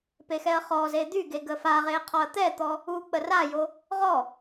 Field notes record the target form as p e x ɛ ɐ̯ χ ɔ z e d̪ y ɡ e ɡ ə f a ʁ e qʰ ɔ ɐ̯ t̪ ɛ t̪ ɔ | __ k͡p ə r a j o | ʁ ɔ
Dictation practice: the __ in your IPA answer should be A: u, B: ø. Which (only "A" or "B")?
A